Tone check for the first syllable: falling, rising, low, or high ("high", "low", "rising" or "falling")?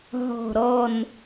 low